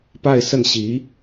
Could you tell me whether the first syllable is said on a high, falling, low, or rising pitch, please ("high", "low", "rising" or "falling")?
falling